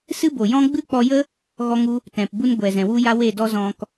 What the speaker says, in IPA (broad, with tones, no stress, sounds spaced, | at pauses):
s ɨ˦ b o˨ j ɔ̃˦ ɡ͡b ɨ˦ k͡p ɔ˧ j ə˦ | ɣ ɔ˦ ŋ u˦ | t ɛ̃˨ p b u˦ n ɡʷ ɛ˨ z ɛ̃˨ w u˦ j a˦ w e˦˨ d ɔ˦ z ɔ̃˧ k